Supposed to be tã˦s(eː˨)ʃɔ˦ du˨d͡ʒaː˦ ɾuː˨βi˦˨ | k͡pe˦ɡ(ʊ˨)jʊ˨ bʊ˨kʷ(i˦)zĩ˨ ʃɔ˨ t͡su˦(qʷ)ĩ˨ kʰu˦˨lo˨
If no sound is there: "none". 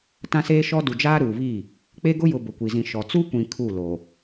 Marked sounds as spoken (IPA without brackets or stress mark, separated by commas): eː˦, ʊ˦, i˨, kʷ